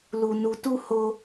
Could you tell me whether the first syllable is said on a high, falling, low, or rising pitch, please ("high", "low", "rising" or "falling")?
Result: high